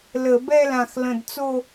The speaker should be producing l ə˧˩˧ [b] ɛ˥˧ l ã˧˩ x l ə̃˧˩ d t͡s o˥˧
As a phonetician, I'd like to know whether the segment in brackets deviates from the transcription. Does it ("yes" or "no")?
no